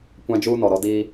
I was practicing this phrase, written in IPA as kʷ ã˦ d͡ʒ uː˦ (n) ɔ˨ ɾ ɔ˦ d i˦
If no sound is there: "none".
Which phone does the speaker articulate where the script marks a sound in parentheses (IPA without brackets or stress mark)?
n